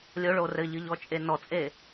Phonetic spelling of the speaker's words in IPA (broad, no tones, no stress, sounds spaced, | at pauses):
lʲ o ɭ o r ɘ ʎ ɨ ʎ ɔ t͡ʃʼ e n ɔ t͡sʼ e